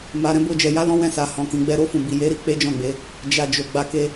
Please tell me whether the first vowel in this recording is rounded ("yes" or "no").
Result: no